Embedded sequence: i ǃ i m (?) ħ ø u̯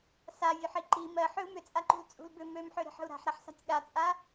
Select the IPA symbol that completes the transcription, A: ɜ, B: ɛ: A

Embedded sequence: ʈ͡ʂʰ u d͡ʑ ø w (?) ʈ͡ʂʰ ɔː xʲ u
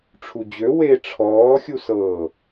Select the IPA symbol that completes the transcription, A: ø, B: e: B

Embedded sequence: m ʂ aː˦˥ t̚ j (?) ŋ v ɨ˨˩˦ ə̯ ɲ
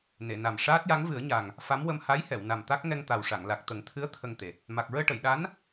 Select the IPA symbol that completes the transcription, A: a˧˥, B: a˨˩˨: A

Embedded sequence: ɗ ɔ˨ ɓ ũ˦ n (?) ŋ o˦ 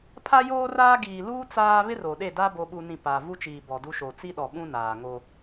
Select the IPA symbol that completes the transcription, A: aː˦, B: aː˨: B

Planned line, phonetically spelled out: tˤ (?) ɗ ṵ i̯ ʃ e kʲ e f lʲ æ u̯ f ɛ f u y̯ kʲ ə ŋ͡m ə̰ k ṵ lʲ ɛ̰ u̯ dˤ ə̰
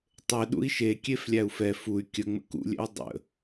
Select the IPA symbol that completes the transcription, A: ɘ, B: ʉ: A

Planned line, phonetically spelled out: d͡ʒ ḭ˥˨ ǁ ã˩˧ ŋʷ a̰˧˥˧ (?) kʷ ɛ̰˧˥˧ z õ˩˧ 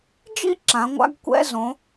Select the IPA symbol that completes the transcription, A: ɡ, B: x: A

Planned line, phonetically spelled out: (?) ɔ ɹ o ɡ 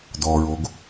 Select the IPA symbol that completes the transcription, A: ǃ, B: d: B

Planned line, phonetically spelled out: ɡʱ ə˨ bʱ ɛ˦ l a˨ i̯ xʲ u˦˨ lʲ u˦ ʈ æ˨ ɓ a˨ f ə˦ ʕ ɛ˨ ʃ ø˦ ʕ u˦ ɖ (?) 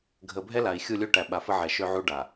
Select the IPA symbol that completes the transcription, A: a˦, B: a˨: B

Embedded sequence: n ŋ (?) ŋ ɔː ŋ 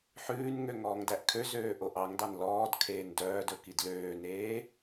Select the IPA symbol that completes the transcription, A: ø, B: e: A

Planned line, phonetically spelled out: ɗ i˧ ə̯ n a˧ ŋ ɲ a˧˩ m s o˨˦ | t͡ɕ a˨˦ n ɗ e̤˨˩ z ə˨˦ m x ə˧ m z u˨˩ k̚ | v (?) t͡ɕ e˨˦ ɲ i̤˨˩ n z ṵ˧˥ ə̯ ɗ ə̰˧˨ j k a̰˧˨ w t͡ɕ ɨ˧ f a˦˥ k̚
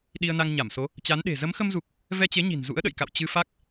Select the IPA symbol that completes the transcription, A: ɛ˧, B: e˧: A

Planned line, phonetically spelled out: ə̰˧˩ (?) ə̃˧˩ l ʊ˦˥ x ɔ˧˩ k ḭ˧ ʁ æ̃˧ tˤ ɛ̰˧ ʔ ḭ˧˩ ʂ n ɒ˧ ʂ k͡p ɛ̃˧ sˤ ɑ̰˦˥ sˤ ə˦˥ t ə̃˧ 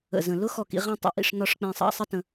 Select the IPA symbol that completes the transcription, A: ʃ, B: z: B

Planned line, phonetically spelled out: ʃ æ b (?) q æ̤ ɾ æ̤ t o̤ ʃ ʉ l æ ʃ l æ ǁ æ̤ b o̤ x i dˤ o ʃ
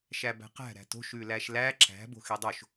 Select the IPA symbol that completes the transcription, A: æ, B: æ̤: B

